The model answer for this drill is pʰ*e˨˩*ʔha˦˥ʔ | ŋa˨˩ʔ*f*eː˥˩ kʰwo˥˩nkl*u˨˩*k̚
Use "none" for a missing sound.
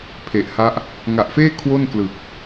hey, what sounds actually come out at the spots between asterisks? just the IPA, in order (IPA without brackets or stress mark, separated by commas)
e˨˩, f, ɯ˨˩